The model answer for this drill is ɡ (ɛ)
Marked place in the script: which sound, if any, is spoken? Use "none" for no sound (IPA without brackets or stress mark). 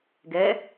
ɛ